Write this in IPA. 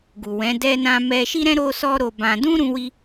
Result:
ɡu˨wɛ̃˨˦ dɛ˧nã˧ mɛ˧ʃi˦ɾɛ̃˦ ɾo˦sɔ˦ɾo˧bã˧ dũ˦ɾũ˧wi˧

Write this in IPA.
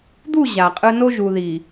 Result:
d̪u˦˨ ʑa˨qʼɯ˦ no˦ʒu˨ði˨

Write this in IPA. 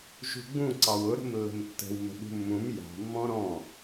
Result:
ʒṳɡ͡bũ ǀɑwʊ ɾə̤mlːə̤mtːə̤w mə̤ɓṳmːũm jɑ̤ mːɔ̃ɾɔ̃

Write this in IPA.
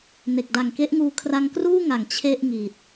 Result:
ne˨˩k̚da˨˩ŋke˦˥ʔŋuː˧ kʰra˧ŋkruː˥˩ŋa˨˩ŋ t͡ɕʰe˥˩ʔŋi˨˩t̚

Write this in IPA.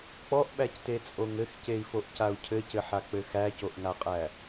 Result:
k͡pɔʔɓæctet͡sʼoŋ ɘxcei̯foʔcau̯ cʰɘcɘħak͡pɘ xæcoʔŋaqʼæ

